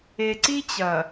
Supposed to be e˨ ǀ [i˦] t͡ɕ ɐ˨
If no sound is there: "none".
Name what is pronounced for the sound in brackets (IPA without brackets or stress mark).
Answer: i˦